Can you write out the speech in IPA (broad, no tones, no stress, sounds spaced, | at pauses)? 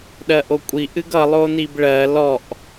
ɗ ɜ ʔ o kʷʼ i ʔ ɨ ɡ ʌ lˠ o n i b ɭ ɜ l ɔ ʔ